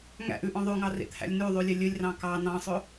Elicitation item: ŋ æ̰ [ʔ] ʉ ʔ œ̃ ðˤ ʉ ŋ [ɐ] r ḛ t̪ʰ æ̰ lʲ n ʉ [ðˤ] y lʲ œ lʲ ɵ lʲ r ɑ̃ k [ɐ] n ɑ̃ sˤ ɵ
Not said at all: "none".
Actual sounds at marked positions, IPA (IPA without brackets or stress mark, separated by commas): ʔ, ɑ, ðˤ, ɑ